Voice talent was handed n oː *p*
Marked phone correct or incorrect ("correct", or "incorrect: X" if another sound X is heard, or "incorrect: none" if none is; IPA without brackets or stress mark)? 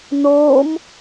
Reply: incorrect: m